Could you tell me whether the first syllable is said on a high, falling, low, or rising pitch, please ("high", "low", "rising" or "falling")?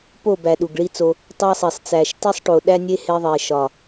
falling